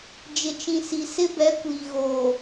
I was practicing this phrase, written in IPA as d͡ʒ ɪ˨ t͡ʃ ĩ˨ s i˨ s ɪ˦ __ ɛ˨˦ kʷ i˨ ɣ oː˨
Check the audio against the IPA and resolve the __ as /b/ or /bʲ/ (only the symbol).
b